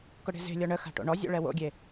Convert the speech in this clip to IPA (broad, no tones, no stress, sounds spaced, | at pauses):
k ʊ ɽ e̤ z e̤ lʲ ɔ ɳ ə x a̤ ʈ o̰ ɳ ɔ zʲ o̰ ɭ ɛ w o̰ ɡʲ e